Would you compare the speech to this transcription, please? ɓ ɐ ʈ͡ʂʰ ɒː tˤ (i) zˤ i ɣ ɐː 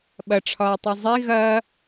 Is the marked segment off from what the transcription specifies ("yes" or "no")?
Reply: no